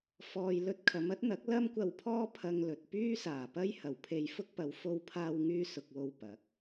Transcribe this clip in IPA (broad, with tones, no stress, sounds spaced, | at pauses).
f ɔː˨ j l ɵ˧ t̚ kʰ ɐ˨˧ m ɐ˥ t̚ n̪ ɐ˨˥ k̚ l ɐ˥ m kʷ ɐ˧ w pʰ ɔː˥ pʰ ɐ˧ ŋ l ɵ˨ t̚ p yː˥ s aː˨˩ p ɐ˥ j h ɐ˨˩ w pʰ e˧ j f ʊ˥ k̚ p ɐ˨˧ w f o˧ w pʰ aː˧ w ŋ yː˧ s ʊ˨ k̚ w o˨ w p ɐ˨˥ k̚